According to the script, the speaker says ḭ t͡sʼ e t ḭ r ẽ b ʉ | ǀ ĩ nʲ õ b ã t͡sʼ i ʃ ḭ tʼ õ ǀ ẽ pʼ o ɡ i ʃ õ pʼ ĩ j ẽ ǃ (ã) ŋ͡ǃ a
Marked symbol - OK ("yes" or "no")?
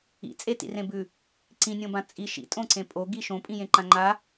yes